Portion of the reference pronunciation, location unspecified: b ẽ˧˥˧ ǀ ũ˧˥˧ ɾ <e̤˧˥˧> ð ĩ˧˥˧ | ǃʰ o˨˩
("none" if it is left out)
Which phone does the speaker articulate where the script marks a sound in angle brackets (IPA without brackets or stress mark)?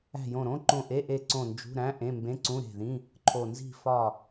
e̤˦˨